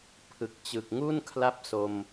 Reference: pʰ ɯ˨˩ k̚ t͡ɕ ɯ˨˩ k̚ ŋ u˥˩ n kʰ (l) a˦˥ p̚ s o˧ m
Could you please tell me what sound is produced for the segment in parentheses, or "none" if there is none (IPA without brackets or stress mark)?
l